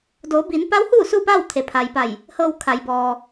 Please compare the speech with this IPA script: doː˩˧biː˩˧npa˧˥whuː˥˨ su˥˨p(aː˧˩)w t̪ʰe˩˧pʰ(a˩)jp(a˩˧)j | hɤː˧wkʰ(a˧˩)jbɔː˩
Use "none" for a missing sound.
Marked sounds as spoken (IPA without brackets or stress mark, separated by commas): aː˥˨, a˩, a˧˩, a˩